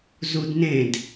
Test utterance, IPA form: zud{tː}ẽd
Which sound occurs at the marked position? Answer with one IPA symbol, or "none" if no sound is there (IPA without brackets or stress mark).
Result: n